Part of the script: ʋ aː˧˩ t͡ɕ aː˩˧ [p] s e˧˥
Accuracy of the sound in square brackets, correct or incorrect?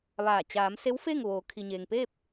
incorrect: m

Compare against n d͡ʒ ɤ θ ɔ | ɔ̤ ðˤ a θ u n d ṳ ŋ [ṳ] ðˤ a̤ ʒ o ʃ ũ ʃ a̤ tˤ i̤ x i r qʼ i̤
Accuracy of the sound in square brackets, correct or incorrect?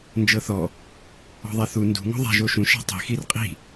incorrect: o̤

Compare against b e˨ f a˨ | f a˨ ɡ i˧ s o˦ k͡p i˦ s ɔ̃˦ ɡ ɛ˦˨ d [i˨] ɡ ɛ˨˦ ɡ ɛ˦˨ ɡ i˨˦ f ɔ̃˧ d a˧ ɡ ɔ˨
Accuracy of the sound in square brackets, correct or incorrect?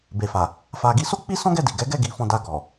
correct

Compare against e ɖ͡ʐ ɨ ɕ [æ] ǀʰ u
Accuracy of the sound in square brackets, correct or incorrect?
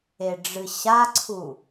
incorrect: a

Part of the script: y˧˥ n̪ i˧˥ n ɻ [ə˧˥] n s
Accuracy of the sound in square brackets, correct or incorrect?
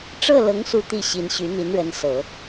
correct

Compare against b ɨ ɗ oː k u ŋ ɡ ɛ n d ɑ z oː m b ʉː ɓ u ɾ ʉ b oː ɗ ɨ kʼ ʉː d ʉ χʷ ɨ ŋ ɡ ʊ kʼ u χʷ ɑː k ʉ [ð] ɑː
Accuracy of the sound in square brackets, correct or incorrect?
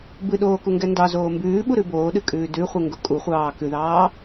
correct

